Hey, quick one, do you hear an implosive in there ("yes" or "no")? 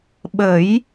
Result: yes